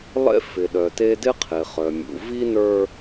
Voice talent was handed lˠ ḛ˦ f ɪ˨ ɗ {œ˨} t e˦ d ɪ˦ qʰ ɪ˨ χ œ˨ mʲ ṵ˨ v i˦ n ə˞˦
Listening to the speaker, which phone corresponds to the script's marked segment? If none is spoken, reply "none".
œ˨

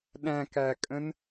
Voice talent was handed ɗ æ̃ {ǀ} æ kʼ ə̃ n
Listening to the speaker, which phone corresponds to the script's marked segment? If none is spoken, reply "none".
k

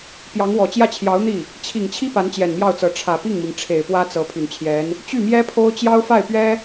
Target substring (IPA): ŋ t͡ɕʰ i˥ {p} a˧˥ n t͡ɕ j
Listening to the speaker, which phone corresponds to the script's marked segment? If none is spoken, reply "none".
p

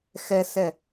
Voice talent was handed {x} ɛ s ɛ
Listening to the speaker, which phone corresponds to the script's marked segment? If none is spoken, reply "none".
x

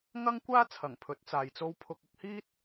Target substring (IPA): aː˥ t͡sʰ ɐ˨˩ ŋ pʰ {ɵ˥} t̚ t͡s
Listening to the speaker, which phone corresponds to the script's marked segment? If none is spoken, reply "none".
ɵ˨˥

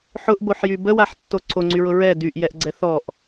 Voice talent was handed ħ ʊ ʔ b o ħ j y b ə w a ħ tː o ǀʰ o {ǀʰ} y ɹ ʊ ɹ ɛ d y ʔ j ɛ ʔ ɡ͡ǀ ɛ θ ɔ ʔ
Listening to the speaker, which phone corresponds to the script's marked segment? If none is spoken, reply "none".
ŋ͡ǀ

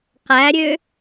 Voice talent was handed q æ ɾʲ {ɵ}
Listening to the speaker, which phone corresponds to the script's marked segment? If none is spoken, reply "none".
ø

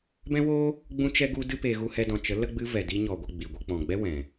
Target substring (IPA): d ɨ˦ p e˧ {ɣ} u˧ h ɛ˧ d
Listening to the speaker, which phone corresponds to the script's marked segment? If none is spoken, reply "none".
ɣ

